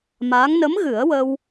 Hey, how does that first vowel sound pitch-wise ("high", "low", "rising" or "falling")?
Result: rising